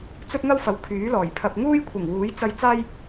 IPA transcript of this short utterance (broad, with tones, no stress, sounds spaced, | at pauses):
t͡s ɵ˥ t̚ ŋ ɐ˥ w f ɐ˨˧ w kʰ yː˨˥ l ɔː˨˩ j pʰ ɐ˧ p̚ ŋ uː˥ j kʷʰ ɪ˨˩ ŋ w uː˨˥ j t͡s ɐ˥ j t͡s aː˥ j